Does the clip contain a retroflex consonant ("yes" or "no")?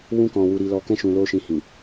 no